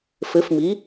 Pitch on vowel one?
rising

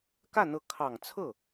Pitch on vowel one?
falling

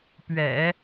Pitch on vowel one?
low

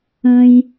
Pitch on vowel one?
low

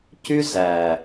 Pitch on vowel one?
high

